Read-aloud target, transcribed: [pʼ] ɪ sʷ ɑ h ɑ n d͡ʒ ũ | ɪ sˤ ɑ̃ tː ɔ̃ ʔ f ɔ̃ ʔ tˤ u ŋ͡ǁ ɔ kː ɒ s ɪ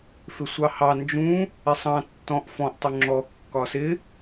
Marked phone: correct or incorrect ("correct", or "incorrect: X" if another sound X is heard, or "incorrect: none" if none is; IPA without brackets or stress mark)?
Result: incorrect: f